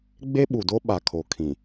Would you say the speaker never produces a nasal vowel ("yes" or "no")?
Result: no